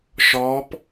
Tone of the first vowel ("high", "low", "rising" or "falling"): rising